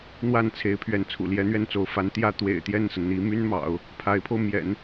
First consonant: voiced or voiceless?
voiced